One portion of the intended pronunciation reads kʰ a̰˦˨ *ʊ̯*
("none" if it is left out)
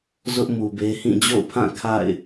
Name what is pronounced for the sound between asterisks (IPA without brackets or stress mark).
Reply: ɪ̯